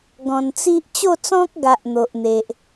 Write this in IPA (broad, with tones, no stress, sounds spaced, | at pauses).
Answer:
ɡ ɔ̃˨˩ n t͡s i˦ ʔ t͡ɕ o˥˧ t͡s ɔ̃˦ k̚ ɡ a˨ ʔ n̪ o˨ ʔ n̪ e˨ ʔ